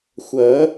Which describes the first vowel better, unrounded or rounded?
unrounded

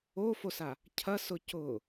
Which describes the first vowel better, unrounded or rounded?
rounded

